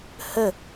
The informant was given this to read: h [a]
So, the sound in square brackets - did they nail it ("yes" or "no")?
no